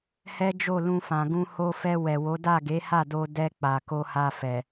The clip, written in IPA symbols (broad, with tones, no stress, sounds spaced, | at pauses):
h ɛ˦ d͡ʒ o˦˨ l ũ˧ f ã˨ ɡ ũ˧ h o˧ f ɛ˧ w ɛ˨ w o˨˦ d a˦˨ ɡ e˨˦ h a˦˨ d o˧ d ɛ˧ k͡p a˨ k o˧ h a˧ f ɛ˨